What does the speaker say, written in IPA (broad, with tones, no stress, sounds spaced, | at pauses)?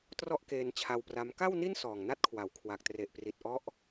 t r ɔ˥˩ ʔ k eː˧ n t͡ɕʰ a˧ w p r a˦˥ m k a˥˩ w n i˥˩ n s ɔː˨˩ ŋ n a˦˥ t̚ kʰ w a˩˦ w kʰ w a˨˩ k̚ t r e˨˩ ʔ p r i˨˩ t̚ ʔ ɔ˦˥ ʔ